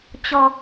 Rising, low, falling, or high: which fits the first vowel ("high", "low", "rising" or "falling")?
low